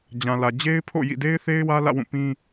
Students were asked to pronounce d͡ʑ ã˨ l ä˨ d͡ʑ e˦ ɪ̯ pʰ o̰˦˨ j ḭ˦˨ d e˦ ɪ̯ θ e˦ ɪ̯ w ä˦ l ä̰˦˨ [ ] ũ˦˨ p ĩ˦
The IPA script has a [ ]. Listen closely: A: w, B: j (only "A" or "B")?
A